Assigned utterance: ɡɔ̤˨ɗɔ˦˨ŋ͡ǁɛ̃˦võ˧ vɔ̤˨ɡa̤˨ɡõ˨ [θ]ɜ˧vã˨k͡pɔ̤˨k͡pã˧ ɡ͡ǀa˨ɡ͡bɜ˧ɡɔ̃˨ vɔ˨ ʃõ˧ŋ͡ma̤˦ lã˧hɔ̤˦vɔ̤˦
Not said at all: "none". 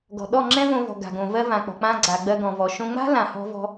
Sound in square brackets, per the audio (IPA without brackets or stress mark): v